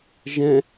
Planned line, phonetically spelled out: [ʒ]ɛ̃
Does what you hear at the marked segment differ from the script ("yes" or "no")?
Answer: no